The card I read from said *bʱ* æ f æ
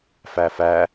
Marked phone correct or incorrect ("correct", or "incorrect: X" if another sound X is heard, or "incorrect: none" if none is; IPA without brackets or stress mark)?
incorrect: f